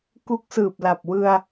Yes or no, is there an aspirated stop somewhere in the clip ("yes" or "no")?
no